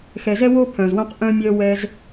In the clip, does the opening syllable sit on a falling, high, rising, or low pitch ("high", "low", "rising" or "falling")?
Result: low